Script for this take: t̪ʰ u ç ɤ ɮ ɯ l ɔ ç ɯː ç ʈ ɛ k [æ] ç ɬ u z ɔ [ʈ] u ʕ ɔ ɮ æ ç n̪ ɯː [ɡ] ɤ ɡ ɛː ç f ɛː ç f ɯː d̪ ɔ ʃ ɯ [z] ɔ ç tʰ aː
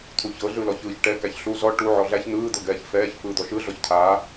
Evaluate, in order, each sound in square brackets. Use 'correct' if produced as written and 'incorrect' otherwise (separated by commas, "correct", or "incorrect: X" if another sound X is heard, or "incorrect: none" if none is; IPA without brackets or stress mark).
correct, correct, incorrect: d̪, incorrect: ɮ